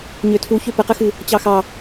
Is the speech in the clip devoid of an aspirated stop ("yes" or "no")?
no